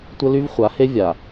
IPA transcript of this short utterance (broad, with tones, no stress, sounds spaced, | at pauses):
tʷ ə˦ l y˦ v χʷ a˨˦ h e˦ vʲ a˨